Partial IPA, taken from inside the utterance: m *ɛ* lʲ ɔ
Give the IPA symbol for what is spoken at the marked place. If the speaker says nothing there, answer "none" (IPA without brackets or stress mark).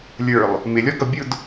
ɪ